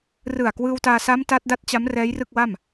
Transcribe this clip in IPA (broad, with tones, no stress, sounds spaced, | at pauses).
r ɯ˨˩ a̯ k w ɯː˧ w t aː˧ s a˦˥ m t a˦˥ t̚ d a˦˥ t̚ t͡ɕ a˦˥ m r ɛː˦˥ j r ɯ˥˩ k̚ w a˥˩ m